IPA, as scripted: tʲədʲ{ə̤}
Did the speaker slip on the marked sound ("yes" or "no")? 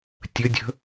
no